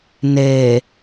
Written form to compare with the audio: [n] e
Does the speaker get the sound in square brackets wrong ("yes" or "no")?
no